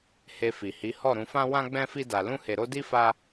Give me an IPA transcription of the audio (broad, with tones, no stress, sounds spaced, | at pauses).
h e˧ f i˨ h i˨˦ h ɔ˦˨ ɾ ũ˧ f ã˦ w ã˦ ɡ͡b ɛ̃˦ f i˦ d a˧ l ũ˦ h e˧ ɾ o˦ d i˦ f a˦